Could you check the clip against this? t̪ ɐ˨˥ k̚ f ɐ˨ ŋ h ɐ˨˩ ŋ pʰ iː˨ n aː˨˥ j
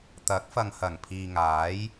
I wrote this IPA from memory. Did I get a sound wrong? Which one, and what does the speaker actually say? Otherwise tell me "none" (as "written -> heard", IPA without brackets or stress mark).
n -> ŋ